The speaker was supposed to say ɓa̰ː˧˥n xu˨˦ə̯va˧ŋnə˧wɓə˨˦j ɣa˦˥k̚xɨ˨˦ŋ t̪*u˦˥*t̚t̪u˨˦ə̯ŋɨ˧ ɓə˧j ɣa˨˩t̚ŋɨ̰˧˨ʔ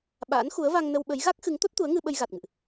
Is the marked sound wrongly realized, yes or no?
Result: yes